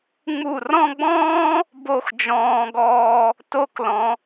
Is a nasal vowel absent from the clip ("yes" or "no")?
no